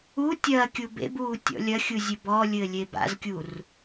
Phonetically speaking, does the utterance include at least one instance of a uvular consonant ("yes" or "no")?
no